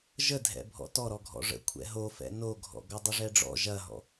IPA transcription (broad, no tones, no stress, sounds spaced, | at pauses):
ʒ ə dʱ ɛ̰ bʱ ɔ̰ t ɔ ɾ ɔ ɡʱ ɔ̰ ʐ ə̰ kʷʰ ɛ̰ ɦ o f ɛ̰ n o ɡʱ ɔ̰ ɡ ɔ dˤ ə ʐ ɛ ɖ͡ʐ ɔ̰ ʒ ɐ ɦ ɔ̰